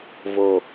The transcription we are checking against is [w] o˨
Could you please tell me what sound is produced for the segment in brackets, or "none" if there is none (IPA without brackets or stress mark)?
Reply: v